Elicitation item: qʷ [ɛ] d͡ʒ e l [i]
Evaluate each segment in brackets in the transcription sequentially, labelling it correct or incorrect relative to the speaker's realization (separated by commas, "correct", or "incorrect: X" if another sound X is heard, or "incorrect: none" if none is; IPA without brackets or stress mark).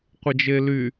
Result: correct, incorrect: y